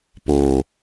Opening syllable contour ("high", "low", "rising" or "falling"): low